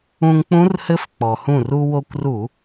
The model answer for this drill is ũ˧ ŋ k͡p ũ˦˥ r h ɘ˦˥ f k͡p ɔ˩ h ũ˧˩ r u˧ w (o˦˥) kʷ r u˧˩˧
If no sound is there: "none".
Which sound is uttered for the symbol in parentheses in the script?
o˧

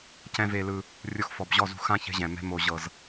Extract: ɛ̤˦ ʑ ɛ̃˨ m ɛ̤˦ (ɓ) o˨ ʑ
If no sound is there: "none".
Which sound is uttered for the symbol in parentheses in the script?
m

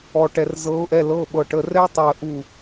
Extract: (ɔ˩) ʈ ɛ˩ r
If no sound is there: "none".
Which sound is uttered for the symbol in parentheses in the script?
ɔ˩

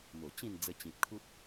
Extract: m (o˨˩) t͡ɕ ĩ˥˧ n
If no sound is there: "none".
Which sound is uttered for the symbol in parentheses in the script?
o˨˩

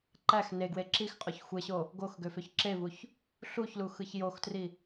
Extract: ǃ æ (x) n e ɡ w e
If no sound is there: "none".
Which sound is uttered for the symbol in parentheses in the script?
x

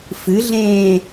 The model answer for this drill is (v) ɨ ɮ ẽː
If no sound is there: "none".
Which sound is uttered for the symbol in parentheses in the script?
f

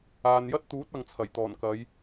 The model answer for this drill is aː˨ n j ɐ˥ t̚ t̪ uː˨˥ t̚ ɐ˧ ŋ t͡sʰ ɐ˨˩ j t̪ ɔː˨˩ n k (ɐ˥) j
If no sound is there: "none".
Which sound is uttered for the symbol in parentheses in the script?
ɐ˨˧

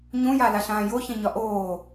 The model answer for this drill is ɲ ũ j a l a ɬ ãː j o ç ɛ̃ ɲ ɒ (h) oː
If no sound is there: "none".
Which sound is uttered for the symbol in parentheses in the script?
ʔ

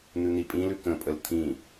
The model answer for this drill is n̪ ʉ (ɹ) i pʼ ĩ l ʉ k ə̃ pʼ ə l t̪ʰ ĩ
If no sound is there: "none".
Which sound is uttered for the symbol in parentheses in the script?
n̪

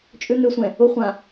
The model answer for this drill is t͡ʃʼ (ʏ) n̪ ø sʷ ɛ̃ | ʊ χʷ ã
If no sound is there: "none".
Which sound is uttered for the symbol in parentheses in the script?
ʏ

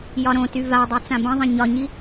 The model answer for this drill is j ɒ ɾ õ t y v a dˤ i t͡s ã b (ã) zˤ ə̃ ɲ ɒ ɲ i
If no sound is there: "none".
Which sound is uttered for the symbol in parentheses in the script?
ə̃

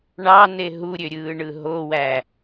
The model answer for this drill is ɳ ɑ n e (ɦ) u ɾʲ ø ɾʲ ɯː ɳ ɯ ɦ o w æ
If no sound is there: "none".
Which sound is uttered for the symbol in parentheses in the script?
ɦ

